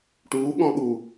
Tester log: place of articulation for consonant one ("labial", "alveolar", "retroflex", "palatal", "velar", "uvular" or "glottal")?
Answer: retroflex